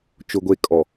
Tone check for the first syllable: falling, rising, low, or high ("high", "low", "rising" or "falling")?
low